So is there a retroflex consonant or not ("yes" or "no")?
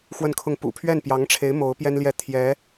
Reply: yes